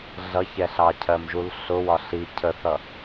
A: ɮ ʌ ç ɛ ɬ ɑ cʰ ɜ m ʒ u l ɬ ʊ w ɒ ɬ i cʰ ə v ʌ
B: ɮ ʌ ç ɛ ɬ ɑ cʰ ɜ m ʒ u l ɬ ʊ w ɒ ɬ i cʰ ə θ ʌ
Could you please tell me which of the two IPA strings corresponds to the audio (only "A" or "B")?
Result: B